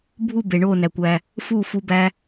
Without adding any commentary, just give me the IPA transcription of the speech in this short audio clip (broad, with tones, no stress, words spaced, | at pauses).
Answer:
bʱu˦˨ be˨ɳoː˦˨næ˨ kʷæ˨ | fuː˦˨fu˧ bæ˧